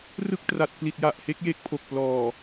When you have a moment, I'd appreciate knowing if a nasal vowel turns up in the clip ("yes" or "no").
no